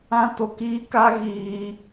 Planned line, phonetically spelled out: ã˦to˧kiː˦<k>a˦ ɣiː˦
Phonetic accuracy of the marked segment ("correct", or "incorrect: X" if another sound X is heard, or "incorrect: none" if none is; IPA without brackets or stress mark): correct